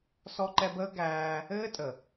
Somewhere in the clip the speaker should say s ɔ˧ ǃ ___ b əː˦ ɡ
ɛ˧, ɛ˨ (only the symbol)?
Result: ɛ˧